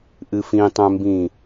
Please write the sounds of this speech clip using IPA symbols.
ʔ ɨ f ĩ tˤ œ̃ m b ĩ

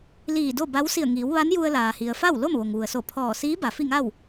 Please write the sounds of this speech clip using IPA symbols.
l iː˧˩ d o˥˨ b a˧˥ w s i˧˩ ə̯ ŋ iː˩˧ w ʋ a˧˥ n j u˧ ə̯ l aː˩ h i˩ ə̯ f a˥˨ w l o˥˨ m ʋ o˩ ŋ ʋ u˩ ə̯ s o˧˩ pʰ ɔː˧˩ s iː˧˥ b a˩ f i˥˨ ŋ a˥˨ w

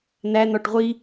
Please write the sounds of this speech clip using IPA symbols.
n̪ æ n̪ ɒ ʈ ʁʷ i

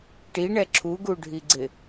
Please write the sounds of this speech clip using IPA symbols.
ʈ i ɳ ɛ ǁʰ u ɡ u ɖʱ i ɡ͡ǀ ɪ

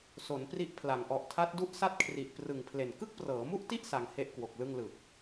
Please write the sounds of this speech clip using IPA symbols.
s o˩˦ n p r i˦˥ ʔ pʰ l a˩˦ ŋ ʔ ɔ˨˩ ʔ tʰ a˦˥ t̚ d u˥˩ ʔ s a˥˩ t̚ kʰ r i˨˩ ʔ p r ɯ˨˩ ŋ pʰ l e˨˩ n k ɯ˥˩ k̚ p r ɤː˩˦ m u˥˩ ʔ t i˥˩ ʔ s a˧ ŋ h e˥˩ ʔ k w o˨˩ k̚ l ɯ˥˩ ŋ l ɯ˨˩ k̚

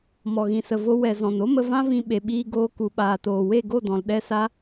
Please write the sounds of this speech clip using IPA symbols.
m ɔ˨ ɣ ĩ˨ s ə˨ v o˧ w ɛ˨ z ɔ̃˨ n o˦ m ə˧ v ã˦ v ĩ˧ ɓ e˨ ɓ iː˧ ɡ oː˧ k u˨ ɓ aː˨ t oː˨ w e˦˨ ɡ o˦˨ d ɔ̃˨ l ɗ ɛ˦ s a˦

